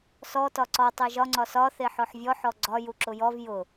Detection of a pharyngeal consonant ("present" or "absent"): present